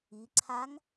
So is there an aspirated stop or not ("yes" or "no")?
yes